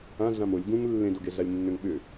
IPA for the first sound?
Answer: ã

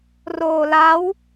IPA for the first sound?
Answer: r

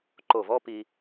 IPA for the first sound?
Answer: ǃ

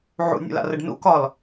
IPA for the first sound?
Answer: ʕ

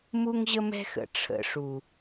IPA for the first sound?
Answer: m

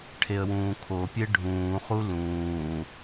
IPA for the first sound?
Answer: ʈʰ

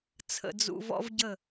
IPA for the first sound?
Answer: t͡sʰ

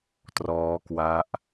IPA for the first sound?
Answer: t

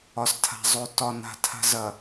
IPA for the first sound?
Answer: ɒ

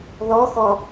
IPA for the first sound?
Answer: ð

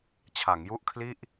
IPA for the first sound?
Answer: t͡ɕʰ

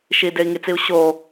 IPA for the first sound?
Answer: ʃ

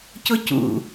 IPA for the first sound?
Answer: c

